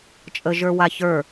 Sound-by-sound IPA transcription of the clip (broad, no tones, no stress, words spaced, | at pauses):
t͡ʃʼəʒə˞waçə˞